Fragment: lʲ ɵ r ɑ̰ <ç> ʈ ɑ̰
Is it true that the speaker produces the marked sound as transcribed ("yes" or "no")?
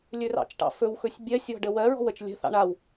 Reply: no